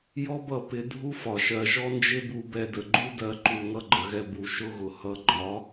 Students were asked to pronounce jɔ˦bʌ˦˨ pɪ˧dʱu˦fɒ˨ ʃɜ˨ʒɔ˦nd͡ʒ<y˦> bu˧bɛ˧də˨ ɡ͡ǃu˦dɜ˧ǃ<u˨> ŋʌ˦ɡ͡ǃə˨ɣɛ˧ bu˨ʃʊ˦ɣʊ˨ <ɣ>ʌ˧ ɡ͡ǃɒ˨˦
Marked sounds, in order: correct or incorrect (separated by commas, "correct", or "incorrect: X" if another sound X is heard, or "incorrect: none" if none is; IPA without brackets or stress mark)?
incorrect: ɪ˦, correct, incorrect: h